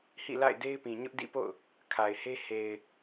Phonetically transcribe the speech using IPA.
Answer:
hḭ˦˨la̰˦˨ɪ̯ de˦ɪ̯pĩ˨ɲʊ˦ʔ dḭ˦˨po̰˦˨ʊ̯ | kʰa˨ɪ̯he˦ he˨ɪ̯

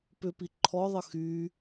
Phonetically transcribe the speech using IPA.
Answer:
pʏpi ǃʰɔðˤə xy

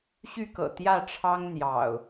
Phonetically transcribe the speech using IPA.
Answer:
ɕy˥˨kɤ̰˨˩ t̪jä˥˨ʈ͡ʂʰɑ˦ŋ n̪jɑ̰˨˩ʊ̯

